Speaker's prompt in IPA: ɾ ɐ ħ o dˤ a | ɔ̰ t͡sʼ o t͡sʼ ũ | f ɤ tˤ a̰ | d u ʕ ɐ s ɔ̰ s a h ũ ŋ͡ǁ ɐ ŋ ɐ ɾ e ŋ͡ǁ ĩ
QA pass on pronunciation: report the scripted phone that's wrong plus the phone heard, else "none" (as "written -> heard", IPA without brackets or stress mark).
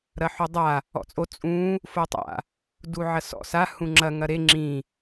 ɤ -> o